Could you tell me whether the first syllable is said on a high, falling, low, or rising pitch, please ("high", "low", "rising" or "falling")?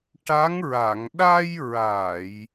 rising